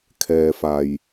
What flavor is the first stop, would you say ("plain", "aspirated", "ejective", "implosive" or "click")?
aspirated